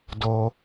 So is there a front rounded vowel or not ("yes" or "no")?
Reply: no